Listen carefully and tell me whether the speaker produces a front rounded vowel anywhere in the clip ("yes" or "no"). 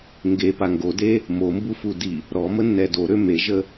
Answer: yes